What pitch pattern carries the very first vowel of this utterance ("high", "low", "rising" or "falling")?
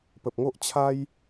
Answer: low